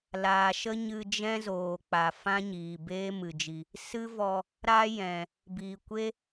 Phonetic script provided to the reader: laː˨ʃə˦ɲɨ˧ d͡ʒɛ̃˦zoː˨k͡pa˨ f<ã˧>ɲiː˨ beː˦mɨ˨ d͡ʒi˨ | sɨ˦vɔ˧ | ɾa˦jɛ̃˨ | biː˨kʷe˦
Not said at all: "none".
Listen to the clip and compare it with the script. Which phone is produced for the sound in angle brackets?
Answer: ã˦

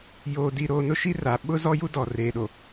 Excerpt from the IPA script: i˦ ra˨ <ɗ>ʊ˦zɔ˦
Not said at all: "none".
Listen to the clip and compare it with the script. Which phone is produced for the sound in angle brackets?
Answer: ɓ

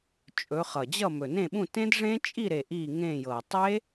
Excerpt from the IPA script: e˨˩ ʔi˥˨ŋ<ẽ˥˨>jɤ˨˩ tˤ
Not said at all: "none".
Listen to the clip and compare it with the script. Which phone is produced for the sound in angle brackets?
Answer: ẽ˥˨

